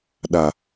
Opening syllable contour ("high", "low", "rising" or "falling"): low